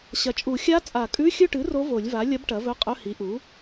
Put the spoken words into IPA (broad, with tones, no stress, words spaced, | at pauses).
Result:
ɕɐ˩˥t͡ʃʼu˨˩˦ xʲa˧˥ t͡sʼa˨˩˦kʼʉ˧˥˧ xʲɵ˦˨ʈɨ˩˥ ro˧˥vo˨˩˦lʲva˩˥ lʲɐ˧˥bʈɐ˩˥ vɵ˧˥˧qʼɵ˧˥˧hi˩˥ʔu˩˥